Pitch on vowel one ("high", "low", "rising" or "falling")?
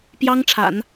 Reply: high